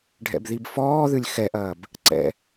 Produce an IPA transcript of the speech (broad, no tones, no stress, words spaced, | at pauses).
ɖʱɛ̰bðibfɔːðɨlʲ xɛʔɐːb | ǀɛ̰